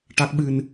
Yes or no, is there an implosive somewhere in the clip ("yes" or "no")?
yes